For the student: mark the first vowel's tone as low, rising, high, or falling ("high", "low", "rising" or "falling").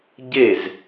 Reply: falling